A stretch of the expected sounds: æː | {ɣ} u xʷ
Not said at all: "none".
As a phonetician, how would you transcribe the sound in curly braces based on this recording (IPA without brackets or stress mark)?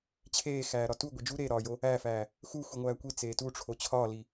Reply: x